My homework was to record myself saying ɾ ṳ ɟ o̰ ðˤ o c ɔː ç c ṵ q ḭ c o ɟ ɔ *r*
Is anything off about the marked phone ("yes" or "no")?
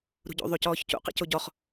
yes